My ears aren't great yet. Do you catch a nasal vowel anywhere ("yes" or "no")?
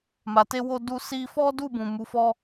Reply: yes